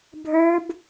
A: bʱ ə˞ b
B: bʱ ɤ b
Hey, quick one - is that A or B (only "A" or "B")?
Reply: A